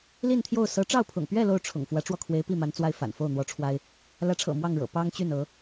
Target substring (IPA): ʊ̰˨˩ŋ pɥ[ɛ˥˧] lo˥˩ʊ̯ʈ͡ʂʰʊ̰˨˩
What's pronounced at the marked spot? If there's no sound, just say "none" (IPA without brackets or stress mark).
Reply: ɛ˥˧